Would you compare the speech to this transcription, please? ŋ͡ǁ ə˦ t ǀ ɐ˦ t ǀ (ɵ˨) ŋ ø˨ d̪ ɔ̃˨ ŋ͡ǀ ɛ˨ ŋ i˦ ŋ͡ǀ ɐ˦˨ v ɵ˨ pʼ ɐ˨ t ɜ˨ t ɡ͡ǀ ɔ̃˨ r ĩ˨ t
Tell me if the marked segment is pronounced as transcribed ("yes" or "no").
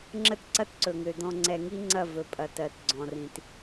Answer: yes